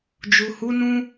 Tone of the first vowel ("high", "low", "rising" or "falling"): low